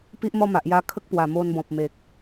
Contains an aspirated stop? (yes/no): yes